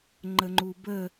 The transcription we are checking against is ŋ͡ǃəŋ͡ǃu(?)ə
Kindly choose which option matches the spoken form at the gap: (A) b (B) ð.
A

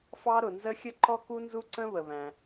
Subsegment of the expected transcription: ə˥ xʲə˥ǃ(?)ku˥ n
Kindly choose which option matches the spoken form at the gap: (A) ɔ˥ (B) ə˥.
A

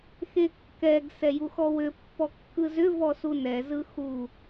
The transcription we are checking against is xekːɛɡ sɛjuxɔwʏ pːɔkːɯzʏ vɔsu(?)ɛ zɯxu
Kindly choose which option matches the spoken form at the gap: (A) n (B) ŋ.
A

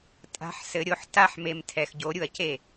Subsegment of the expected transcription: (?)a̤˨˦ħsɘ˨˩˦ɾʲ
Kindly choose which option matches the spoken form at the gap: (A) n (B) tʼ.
B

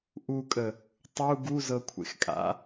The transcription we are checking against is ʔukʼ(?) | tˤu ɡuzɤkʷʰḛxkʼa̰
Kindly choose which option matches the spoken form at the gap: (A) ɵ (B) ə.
B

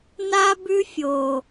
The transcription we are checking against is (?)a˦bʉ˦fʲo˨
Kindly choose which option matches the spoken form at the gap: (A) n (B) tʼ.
A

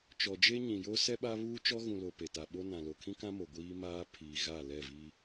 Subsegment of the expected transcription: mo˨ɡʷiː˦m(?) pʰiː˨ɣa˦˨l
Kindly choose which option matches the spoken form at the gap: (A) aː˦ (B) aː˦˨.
A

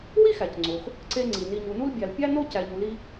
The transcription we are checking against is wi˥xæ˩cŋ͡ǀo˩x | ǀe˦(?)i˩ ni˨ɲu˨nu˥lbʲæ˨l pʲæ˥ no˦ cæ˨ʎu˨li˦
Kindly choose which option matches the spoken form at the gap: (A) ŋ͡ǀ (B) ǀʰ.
A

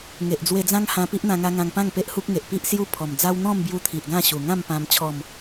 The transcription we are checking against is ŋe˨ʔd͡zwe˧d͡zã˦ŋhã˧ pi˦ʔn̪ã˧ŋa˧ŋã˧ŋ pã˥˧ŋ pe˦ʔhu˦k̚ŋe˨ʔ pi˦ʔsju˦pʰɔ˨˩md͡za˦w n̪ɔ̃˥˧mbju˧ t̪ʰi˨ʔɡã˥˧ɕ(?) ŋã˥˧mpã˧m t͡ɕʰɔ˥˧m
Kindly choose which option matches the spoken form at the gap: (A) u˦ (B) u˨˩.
B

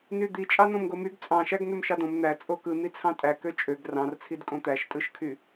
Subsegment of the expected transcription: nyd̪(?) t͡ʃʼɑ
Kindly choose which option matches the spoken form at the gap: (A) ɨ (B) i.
B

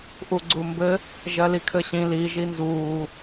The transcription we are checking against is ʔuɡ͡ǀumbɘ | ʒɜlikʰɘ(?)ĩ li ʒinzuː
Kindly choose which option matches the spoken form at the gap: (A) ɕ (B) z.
A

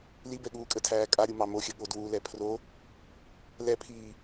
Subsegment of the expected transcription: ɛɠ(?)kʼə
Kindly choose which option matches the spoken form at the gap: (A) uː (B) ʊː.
A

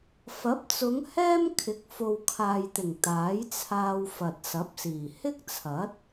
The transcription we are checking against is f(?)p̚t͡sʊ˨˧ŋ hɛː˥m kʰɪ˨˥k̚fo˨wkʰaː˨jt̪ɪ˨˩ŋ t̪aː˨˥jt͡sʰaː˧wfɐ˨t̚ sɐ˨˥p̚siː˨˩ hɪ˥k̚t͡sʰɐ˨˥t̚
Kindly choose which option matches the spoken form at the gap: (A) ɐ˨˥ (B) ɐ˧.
A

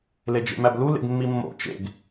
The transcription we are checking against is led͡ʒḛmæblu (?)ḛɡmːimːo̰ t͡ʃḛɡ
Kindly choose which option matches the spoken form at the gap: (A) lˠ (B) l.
B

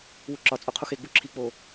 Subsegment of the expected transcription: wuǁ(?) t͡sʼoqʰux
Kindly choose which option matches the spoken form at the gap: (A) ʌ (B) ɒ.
B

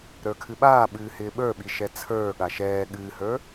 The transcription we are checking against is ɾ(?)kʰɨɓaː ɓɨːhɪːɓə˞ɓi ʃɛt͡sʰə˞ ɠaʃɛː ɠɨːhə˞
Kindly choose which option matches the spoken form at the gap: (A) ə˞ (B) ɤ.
A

